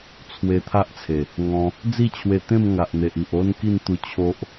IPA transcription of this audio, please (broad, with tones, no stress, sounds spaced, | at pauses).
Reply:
t͡sʰ w e˧ t̪ʰ a˦ ʔ t͡sʰ e˨˩ | ŋ ɔ̃˧ | d͡z i˥˧ t͡ɕʰ w e˧ t̪ ẽ˥˧ m ŋ a˨ ʔ n̪ e˨ ʔ i˨ ʔ o˦ n k i˥˧ n t̪ u˥˧ t͡ɕʰ o˦ ʔ